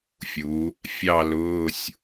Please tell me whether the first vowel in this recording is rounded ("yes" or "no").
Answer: yes